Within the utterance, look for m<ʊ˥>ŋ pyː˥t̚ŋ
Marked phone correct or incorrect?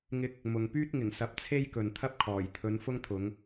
incorrect